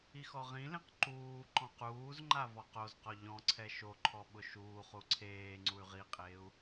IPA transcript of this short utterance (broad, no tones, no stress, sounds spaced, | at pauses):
i x ɔ ʁ ĩ l ĩ q ǃ uː ǃ ɔ̃ q uː z ŋ͡ǃ a v ɔ q o z q ɔ ʎ ɔ̃ ǀʰ ɛ ʃ o ǃʰ ɔ ɓ ʊ ʃ uː χ u ǀʰ eː ŋ͡ǀ u y̯ ʁ i qʼ eː u̯